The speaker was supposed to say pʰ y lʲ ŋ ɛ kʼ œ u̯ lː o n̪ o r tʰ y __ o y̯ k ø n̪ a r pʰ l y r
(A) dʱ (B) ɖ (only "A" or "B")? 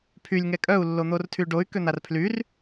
B